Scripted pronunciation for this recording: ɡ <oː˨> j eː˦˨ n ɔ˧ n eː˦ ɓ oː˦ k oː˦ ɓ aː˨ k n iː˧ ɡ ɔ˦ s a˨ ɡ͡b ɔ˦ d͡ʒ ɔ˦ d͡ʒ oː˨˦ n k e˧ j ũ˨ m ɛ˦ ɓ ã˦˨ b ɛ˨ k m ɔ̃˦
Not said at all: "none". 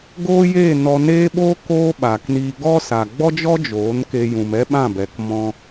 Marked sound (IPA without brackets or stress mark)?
oː˦